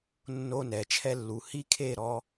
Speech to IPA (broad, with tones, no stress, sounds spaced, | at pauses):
nː o˧ n ɛ˨ t͡ʃʰ ɛ˧ lː u˨ h i˦ kʰ e˦˨ ɾ ɔ˧